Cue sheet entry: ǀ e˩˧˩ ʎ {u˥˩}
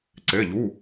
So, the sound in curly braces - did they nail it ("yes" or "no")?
no